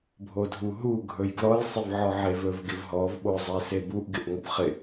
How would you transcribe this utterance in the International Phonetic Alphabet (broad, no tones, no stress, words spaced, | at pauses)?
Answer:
bʱodʱuɦu ɡʱɵjɡlɔj sˤɪvʕɔʕevɵv ɡɪvɦɔv ɓozˤesebuʔ ɡɪʔŋɔbχɪ